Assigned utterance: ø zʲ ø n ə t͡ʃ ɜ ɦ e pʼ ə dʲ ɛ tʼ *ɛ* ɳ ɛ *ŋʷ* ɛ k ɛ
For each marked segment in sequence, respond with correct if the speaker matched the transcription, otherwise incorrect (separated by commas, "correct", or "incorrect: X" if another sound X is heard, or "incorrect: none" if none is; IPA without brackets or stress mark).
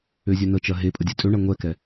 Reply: incorrect: ø, correct